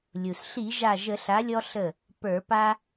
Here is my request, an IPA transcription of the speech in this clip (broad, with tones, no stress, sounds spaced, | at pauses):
lʲ u˩ s ɬ i˧˩˧ ʒ a˧˩ ʒ ə˧˩˧ ɬ a˩˥ lʲ ɔ˧ ɬ ə˧˩ | p ə˞˧˩˧ p a˧